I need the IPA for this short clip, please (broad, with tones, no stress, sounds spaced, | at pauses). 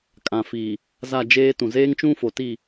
kʼ ã˨ f iː˨ | z a˦˨ d͡ʒ eː˦ t ũ˨ z eː˦ ŋ t͡ʃ ũ˦ f o˨ t i˦˨